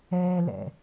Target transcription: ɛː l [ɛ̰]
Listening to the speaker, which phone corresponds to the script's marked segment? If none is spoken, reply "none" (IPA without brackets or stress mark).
ɛ̰